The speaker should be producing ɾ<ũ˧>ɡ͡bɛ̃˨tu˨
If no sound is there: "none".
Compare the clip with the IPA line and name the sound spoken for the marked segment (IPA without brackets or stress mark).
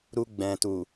u˧